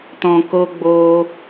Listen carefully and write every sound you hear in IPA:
tɔ̃˨ko˧ ɡ͡bo˧

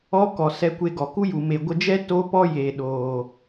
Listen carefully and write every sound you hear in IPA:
ɔ˦kɔ˨ sɛ˧kʷe˧ ɡɔ˨ku˦ju˨ me˨ɡʷə˧d͡ʒɛ˦ to˦pɔ˦ je˨ɗoː˨

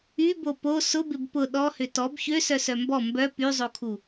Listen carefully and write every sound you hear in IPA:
ybo po sʊbɪb pʊ ɗɔhʏ tɔb çøsœsœ mbɔ mbœ pyzˤokʰu

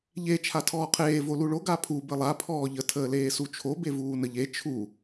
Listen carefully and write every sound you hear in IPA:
ʎe t͡ʃʰatʰɔːqʰeː voluɭo ɡapʰu bəlˠa pʰɔːʎə tʰəːleːsut͡ʃʰo bevuːnəʎe t͡ʃʰu

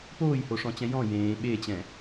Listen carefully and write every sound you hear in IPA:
poːjhoʂɔ̃t͡ɕɛ̃ jɔ̃ jẽː ɓet͡ɕɛ̃

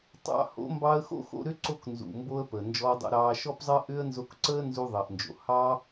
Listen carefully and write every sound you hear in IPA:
tˤɑ̰˧ho̰˨˦mbɑ˧ə̯xo̰˦ xo̰˧ɾʏ˦ǀo˧k nzṵ˨mbo˧ə̯ pəː˨nd͡ʒɔː˧dˤo̰˧ɾɑː˧ ʃɔ˧pzˤəː˧ʔʏː˧ə̯ nzo˧kǀəː˦nzu˧ ðˤəː˨ʔnd͡ʒo̰˨ hɑː˧

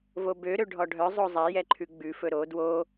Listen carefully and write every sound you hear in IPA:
vobøɾø ɖʱɔɖʱœzˤo zˤejɛǃʰʉ ɡ͡bʉfɵ ɾo dwo

